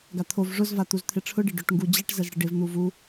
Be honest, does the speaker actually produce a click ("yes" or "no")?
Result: no